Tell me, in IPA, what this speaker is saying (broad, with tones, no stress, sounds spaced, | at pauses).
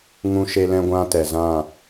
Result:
ŋ ũ˦ ʃ e˦ l ɛ̃˦ ɡʷ ã˦ t ɛ˨ z ã˦˨